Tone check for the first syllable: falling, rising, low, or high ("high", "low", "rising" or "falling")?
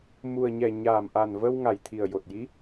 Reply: low